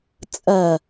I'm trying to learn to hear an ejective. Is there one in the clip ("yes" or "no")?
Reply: yes